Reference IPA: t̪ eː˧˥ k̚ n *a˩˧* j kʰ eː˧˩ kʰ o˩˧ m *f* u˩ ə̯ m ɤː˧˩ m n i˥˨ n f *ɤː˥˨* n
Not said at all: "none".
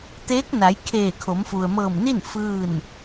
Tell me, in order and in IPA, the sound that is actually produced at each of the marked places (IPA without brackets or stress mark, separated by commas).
a˩˧, f, ɯː˥˨